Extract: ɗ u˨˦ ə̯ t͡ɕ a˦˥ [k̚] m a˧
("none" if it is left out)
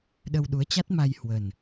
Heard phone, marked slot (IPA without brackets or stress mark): t̚